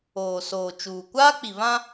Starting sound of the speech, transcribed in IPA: oː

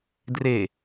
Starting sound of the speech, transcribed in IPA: d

